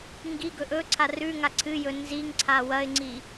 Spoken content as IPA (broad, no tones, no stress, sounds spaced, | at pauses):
ŋ ɡ i ɡ ɵ ʔ ɵ ǀʰ a r ʉ ŋ a ǀʰ ɨ j ɵ n z i ŋ ǀʰ a w ɐ ɪ̯ ŋ͡ǀ i